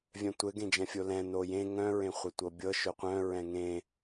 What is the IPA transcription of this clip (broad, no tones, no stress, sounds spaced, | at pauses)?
vʲ œ̃ tʷ ɘ ɡ ẽ d͡ʒ ɛ̃ fʲ o l ɛ̃ n o j ẽ ŋ œ̃ ɹ ẽ χʷ œ tʷ ɤ bʲ ɤ ʃ ʊ qʷ œ̃ ɹ ɛ̃ ŋ ẽ